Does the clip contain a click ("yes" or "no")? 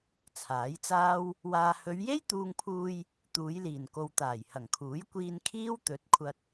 no